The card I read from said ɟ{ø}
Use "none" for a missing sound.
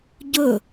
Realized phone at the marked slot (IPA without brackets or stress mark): ɵ